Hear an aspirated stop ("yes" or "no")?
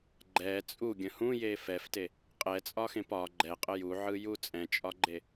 no